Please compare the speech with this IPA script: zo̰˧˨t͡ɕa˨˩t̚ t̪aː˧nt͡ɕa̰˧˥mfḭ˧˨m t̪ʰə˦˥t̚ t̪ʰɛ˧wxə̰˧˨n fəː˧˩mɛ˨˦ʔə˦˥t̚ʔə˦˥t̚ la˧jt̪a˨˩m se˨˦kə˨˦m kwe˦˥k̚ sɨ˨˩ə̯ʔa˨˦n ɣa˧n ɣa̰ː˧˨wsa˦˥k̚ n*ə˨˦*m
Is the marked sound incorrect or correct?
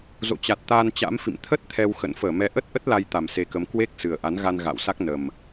incorrect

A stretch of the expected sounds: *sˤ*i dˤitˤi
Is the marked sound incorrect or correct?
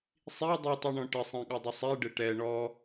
correct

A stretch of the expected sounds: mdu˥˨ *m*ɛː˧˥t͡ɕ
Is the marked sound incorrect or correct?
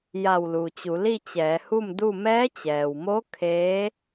correct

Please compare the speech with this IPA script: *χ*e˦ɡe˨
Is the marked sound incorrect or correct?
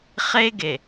correct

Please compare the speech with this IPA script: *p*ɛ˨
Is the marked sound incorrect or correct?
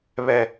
incorrect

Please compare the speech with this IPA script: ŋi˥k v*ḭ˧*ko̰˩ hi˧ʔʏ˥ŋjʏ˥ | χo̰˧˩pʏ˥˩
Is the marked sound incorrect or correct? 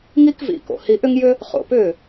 correct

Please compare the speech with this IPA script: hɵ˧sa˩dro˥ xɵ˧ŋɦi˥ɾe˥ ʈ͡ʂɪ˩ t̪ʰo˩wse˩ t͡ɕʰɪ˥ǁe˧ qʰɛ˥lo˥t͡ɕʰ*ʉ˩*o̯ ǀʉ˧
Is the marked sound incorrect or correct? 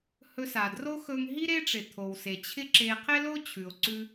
correct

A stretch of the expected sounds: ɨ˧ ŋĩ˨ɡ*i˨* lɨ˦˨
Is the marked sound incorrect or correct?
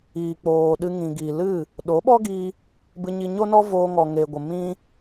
correct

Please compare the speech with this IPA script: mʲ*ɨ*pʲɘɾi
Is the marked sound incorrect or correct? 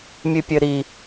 correct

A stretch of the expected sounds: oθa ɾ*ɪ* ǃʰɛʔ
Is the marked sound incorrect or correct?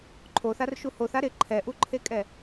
correct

